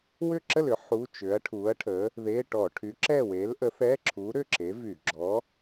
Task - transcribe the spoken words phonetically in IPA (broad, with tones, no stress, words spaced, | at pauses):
wʏ˥˨ǁə˥˨lʏ˨˥ ħu˧˥˧ t͡ʃʏ˨˥ɐ̯ʈʰu˨˥ɐ̯ʈʰə˨˥ | ðe˧˥˧ʈɔ˧˩˧ ʈʰy˨˥ǁɛ˥˨we˨˥lʔə˨˥ θɛ˧˥˧ǁʰu˨˥ ɾʏ˥˨ ǁe˨˥vy˧˩˧ ɡ͡ǁɔ˨˥